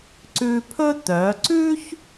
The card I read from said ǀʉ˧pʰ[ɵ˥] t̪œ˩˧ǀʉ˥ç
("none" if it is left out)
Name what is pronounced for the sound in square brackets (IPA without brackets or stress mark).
ɵ˥